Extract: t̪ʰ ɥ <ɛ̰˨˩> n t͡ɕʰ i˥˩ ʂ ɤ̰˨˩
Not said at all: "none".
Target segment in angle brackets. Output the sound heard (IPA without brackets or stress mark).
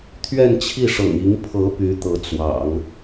ɛ˥˧